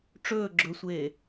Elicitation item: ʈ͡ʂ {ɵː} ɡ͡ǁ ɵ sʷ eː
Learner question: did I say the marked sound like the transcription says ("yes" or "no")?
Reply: yes